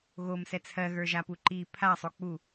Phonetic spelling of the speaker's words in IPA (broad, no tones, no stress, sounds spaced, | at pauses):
ɣ o m s ɛ t͡sʰ ɜ ɣ ə˞ ʒ a p u ǃ i pʰ a sˤ o k͡p u